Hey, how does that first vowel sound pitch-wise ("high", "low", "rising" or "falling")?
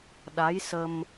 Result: rising